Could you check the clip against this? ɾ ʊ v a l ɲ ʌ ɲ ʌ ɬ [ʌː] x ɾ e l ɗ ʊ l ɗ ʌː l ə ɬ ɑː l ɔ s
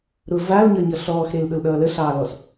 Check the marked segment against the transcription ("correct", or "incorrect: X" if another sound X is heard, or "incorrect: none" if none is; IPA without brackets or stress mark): incorrect: ɔː